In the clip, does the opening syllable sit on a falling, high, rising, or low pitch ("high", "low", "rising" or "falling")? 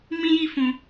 high